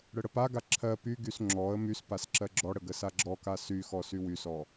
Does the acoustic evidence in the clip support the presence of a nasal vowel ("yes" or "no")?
no